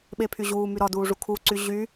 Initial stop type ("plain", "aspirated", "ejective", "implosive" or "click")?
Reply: implosive